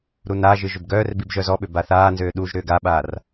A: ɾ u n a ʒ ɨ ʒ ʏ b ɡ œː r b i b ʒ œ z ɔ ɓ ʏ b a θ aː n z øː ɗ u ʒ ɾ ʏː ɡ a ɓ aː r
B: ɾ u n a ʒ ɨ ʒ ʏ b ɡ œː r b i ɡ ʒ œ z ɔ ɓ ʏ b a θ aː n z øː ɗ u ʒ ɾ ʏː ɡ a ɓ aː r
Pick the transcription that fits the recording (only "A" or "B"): A